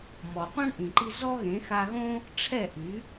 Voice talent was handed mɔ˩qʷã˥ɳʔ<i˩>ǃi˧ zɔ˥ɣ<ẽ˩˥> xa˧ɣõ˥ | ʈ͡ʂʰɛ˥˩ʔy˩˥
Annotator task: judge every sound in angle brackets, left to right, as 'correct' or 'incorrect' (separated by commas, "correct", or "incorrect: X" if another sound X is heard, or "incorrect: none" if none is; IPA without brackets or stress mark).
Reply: incorrect: ĩ˩, correct